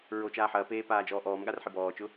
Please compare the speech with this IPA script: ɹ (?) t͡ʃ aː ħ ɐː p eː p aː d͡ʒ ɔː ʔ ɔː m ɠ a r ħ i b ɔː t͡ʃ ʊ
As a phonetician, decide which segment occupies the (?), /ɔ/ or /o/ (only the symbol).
o